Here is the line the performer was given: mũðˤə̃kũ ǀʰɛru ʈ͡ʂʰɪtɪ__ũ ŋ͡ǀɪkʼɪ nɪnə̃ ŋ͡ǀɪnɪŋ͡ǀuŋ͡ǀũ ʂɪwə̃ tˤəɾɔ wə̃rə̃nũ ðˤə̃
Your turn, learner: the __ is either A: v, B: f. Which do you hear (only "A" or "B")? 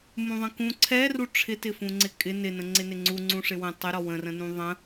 B